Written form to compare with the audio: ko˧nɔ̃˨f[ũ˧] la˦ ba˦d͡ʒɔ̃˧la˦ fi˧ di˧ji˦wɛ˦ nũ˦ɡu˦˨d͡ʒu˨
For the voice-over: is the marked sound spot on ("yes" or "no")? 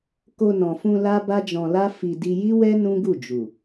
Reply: yes